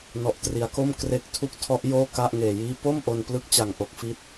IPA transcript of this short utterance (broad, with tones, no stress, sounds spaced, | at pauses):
n ɔ˨˩ ʔ t r i˩˦ a̯ k o˥˩ m k r e˦˥ k̚ tʰ u˥˩ k̚ tʰ ɔ˦˥ ʔ j oː˥˩ k a˥˩ ʔ ŋ eː˨˩ j iː˦˥ p o˥˩ m ʔ o˧ n p l ɯ˦˥ k̚ t͡ɕ a˨˩ ŋ ʔ o˨˩ k̚ f i˦˥ t̚